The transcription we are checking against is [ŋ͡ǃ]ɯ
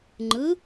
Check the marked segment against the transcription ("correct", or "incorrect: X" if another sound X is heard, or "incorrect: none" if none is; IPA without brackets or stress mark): correct